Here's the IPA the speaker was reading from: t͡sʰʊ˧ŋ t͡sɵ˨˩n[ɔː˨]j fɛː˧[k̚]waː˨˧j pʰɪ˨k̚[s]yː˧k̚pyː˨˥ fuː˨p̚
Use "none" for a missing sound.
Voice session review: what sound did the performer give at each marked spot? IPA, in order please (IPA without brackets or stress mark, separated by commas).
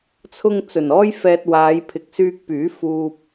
ɔː˥, t̚, s